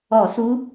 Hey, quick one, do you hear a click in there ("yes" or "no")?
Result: no